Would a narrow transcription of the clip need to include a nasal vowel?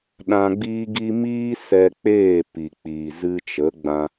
yes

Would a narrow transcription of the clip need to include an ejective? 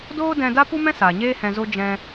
no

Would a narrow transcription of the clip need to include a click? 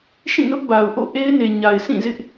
no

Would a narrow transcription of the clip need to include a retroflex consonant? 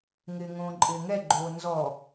no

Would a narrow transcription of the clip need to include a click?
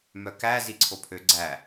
yes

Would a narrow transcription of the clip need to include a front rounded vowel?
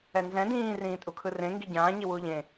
no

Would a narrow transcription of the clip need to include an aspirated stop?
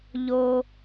no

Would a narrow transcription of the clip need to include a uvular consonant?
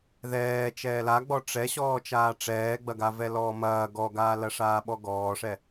no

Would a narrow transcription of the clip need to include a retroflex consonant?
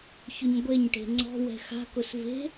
yes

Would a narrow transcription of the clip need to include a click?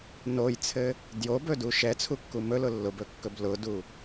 no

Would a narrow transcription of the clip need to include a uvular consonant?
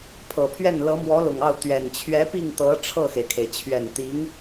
no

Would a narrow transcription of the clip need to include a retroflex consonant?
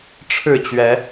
yes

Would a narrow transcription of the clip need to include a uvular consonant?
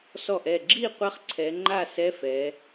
yes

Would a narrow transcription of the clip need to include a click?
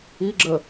yes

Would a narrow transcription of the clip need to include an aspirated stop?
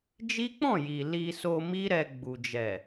no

